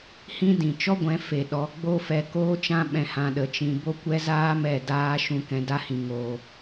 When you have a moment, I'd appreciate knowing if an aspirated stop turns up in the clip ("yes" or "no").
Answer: no